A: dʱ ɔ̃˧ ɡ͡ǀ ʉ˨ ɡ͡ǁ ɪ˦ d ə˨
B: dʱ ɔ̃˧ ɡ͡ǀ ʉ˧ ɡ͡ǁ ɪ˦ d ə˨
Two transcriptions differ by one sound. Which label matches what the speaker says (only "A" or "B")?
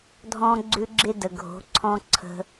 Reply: B